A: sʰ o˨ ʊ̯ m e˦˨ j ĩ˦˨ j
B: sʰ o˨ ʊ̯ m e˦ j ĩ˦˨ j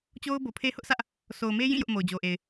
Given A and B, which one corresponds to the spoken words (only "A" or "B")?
B